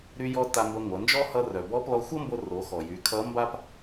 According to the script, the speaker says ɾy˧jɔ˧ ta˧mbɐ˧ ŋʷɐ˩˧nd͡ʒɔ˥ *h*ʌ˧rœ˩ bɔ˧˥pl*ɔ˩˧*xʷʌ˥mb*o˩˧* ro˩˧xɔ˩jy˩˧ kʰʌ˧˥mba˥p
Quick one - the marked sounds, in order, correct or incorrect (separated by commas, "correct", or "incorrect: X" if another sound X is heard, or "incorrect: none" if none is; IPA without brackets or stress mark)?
correct, incorrect: ɔ˧, incorrect: o˧